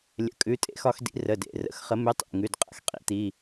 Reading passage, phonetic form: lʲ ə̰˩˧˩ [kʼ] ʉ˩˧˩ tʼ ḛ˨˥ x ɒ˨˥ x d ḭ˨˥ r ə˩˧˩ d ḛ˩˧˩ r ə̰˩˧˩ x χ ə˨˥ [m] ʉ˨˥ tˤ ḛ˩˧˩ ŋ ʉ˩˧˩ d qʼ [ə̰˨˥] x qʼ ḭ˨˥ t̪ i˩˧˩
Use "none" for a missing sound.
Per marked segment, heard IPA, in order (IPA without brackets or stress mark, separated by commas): kʼ, m, ə̰˨˥